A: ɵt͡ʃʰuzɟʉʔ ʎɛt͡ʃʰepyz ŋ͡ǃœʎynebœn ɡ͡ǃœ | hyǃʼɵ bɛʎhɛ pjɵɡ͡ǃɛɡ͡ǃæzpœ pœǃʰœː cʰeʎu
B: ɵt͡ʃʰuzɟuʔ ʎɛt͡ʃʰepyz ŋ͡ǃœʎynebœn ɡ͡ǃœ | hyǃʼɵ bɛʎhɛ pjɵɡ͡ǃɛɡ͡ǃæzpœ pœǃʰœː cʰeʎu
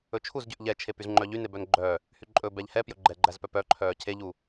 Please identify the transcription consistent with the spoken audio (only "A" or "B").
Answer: A